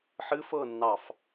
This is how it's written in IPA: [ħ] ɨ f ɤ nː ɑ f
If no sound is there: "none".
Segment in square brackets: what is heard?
ħ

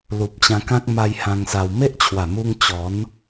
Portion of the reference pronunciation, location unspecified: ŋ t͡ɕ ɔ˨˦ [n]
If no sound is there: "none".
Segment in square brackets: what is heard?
n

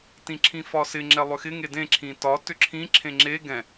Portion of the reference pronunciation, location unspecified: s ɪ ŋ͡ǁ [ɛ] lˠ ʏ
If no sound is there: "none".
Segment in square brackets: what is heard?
ɛ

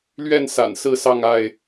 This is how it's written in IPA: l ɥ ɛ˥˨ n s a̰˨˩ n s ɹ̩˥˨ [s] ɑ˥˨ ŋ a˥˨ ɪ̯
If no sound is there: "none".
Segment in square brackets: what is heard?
s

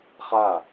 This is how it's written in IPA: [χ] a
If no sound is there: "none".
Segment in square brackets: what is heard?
χ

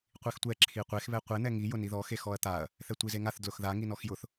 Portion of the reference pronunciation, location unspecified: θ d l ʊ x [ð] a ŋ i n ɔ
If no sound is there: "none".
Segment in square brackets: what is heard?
ð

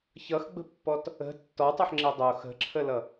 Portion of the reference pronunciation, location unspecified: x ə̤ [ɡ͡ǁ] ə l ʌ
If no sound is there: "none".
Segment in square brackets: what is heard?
ǁʰ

